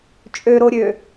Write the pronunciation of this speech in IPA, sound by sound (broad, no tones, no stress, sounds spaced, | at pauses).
t͡ʃʼ ø ɾ o ɾʲ ø